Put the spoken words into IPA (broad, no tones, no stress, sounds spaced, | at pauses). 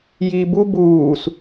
j iː b u b uː s